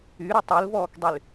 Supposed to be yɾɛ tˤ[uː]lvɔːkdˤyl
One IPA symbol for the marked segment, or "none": u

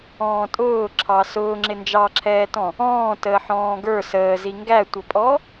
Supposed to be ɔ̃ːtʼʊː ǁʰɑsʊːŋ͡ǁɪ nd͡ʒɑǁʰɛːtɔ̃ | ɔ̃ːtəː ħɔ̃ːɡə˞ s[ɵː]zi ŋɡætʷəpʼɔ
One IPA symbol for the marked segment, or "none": əː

